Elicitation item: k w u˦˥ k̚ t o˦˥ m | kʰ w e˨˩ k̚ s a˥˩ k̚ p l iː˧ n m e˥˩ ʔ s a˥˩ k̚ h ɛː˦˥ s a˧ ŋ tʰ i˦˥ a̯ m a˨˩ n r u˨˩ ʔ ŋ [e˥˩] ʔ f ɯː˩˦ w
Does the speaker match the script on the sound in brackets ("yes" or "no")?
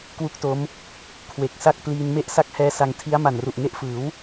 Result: no